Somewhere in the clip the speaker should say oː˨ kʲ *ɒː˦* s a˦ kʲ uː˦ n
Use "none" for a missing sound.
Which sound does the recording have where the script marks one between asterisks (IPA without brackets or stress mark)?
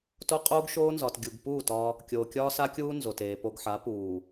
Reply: ɒː˦